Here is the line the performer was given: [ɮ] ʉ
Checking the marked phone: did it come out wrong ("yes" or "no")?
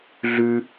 no